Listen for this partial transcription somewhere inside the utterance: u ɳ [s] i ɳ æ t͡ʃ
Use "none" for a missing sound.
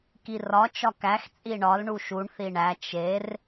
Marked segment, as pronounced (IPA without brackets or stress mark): θ